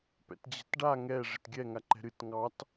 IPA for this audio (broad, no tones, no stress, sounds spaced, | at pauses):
p ɛ̰ t d͡ʑ ɛ̤ t ɖ a ŋ ɛ ʐ ɪ t ɡʲ ɛ ŋ a ǃ ɛ̤ ɾ ɨ t ŋ ɑ t